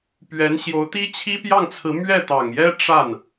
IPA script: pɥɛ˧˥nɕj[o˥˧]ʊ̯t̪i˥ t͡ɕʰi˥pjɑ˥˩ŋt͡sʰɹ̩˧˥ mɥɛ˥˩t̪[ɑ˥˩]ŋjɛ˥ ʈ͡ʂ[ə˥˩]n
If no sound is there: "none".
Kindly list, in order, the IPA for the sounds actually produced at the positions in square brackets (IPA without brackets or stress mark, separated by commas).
o˧˥, ɑ˨˩, a˥˩